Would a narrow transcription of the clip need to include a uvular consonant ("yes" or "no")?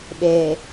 no